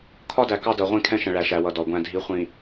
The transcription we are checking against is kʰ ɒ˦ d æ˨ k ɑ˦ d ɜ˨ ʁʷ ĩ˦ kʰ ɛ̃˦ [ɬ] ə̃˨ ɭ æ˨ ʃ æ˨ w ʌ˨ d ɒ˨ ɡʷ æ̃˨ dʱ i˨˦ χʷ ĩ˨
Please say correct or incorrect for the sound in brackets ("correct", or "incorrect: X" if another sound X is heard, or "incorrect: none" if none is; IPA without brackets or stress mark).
incorrect: ʃ